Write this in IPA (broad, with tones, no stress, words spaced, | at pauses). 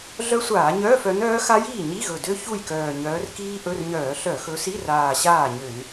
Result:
ɮœ˦˥sʷaː˧˩˧ɲœː˧˥˧f œ˨˦nœː˦˥ xa˦˥jiː˥˩ ɲi˧˥˧ɣɵ˨˩dø˦˥ çu˥˩jkœː˨˩ɲœː˨˦r kiː˦˥ʔɵ˧˥˧rɲœː˧˩˧ ɬœ˧˩˧xɵ˨˦si˧˥˧raː˨˩ ɕaː˥˩ɲø˧˩˧n